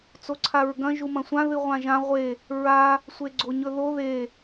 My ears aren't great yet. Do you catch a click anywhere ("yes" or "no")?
yes